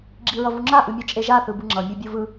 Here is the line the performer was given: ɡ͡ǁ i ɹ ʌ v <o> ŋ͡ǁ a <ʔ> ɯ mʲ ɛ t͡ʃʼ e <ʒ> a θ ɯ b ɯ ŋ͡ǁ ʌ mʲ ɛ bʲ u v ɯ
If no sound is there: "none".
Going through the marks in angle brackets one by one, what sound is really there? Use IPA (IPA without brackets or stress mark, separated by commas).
u, ʔ, ʒ